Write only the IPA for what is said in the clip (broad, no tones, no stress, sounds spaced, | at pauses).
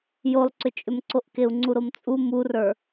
j o lˠ ǀ ʏ t͡ʃʼ ʏ m ǀ o ʔ k e u̯ ŋ͡ǀ u ɾ o m t͡sʼ u m u r ə˞